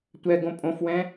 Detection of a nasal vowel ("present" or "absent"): present